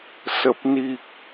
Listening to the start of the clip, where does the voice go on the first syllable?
low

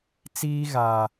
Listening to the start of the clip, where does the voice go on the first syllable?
high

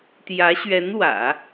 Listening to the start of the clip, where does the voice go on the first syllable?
rising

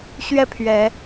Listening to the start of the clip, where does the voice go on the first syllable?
falling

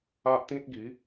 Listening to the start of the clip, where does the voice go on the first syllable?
high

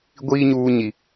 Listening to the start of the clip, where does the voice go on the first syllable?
high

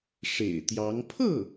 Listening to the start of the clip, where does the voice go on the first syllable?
low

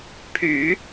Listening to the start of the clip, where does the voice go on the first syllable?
low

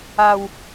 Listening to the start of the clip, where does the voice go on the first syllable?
low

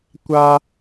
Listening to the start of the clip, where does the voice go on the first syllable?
high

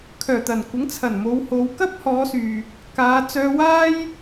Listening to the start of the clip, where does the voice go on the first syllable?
low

